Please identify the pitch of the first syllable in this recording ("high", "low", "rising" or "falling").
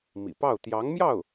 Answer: low